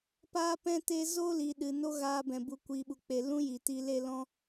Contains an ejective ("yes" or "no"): no